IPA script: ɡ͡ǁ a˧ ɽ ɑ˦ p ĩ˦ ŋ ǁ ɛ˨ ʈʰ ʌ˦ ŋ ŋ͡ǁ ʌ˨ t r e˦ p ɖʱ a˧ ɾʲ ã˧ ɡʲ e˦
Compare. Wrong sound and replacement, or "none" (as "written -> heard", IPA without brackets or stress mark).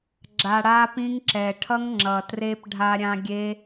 ɑ˦ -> a˦